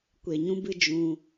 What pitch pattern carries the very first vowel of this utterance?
low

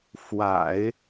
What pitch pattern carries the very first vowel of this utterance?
low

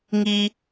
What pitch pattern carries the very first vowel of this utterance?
high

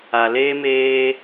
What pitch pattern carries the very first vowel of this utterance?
low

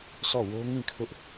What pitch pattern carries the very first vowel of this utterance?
falling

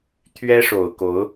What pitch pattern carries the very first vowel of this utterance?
high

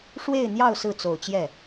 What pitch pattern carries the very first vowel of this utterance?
falling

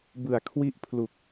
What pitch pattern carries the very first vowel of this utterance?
low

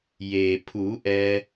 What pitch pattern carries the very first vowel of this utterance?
low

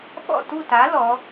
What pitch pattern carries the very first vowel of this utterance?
falling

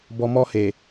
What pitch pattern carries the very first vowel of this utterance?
low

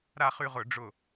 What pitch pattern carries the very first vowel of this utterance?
falling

